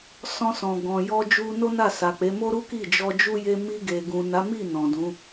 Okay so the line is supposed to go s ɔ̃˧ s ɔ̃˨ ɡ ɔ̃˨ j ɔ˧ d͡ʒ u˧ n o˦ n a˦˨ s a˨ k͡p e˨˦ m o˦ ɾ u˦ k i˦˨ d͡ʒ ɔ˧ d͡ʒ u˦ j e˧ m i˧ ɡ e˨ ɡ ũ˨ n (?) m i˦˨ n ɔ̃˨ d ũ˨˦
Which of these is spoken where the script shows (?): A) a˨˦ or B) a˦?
A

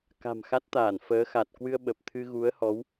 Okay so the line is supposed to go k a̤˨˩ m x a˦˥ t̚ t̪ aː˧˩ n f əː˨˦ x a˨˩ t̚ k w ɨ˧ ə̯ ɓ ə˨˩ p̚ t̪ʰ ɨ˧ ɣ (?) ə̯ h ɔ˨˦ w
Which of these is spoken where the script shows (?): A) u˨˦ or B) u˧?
A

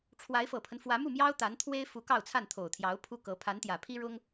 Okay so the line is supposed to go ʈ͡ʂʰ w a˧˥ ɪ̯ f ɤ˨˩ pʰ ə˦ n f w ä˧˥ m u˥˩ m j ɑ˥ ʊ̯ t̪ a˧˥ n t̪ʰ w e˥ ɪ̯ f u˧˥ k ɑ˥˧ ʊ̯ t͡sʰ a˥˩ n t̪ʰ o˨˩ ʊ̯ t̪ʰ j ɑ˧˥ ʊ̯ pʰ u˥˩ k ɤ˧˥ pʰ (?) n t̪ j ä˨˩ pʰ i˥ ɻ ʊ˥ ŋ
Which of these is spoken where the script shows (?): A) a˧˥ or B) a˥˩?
A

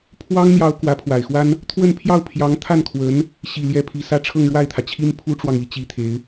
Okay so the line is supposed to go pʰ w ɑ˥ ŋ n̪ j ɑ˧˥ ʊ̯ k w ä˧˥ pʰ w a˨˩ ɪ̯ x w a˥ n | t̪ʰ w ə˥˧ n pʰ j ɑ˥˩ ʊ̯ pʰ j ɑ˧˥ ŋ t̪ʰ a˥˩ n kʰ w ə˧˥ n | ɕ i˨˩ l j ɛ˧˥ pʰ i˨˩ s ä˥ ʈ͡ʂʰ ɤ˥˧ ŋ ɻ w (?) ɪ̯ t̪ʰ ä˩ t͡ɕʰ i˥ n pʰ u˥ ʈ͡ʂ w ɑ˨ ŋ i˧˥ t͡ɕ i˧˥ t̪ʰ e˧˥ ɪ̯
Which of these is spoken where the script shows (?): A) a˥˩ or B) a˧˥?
A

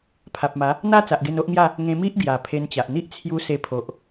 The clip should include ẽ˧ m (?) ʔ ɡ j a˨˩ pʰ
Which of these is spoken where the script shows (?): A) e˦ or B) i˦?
B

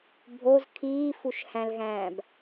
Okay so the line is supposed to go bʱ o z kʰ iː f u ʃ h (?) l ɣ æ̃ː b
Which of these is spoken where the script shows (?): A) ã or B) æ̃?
B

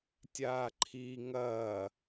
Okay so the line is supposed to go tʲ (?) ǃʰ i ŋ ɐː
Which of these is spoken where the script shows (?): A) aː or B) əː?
A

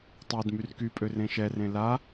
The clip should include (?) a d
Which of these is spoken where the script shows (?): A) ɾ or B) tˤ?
B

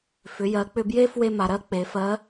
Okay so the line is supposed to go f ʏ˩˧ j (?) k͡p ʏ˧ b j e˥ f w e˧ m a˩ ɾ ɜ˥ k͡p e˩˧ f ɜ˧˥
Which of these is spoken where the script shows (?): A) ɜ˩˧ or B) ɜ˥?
A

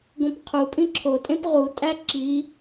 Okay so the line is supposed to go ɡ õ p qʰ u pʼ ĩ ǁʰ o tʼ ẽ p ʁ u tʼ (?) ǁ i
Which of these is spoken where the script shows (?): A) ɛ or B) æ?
B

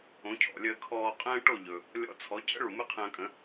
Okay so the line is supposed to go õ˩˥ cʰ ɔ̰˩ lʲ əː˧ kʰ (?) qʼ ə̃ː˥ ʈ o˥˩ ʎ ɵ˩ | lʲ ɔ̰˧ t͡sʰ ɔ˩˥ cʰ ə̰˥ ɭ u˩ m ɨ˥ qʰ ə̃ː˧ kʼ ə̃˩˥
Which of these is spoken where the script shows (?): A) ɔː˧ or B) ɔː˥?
A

